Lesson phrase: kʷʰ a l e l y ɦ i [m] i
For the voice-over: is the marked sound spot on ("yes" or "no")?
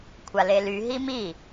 yes